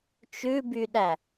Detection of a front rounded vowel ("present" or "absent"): present